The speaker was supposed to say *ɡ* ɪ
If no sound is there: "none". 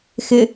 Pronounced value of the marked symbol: x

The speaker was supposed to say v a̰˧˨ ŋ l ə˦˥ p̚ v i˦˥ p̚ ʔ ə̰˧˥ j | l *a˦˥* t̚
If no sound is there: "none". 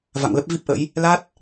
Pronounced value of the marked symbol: a˦˥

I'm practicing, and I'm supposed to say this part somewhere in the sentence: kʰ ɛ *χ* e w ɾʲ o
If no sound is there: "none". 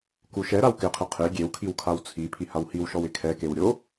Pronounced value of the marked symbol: k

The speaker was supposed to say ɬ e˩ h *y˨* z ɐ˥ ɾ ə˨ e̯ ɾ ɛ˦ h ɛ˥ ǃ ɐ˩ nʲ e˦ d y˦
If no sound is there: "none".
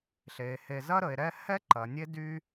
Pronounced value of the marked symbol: e˨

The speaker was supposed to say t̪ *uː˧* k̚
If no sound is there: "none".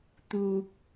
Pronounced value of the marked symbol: uː˧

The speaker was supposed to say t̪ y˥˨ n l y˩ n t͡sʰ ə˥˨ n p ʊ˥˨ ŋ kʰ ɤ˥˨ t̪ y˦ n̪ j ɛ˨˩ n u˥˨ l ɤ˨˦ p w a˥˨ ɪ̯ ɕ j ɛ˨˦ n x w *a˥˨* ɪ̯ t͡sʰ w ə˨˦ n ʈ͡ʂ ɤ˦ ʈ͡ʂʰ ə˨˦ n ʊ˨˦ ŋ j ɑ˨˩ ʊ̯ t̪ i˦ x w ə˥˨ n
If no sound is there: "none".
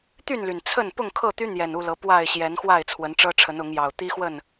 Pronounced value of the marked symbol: a˥˨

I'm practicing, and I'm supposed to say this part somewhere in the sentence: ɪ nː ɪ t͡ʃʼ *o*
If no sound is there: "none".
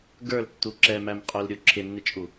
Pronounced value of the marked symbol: u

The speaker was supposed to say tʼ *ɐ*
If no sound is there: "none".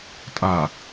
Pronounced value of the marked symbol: a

